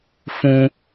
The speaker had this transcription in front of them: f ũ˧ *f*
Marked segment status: incorrect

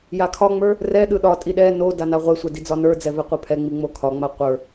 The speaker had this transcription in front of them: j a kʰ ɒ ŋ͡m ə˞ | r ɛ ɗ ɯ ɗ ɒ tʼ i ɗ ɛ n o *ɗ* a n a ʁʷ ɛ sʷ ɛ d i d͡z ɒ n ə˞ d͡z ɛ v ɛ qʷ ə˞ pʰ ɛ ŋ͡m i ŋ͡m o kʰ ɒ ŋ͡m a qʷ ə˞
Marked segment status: incorrect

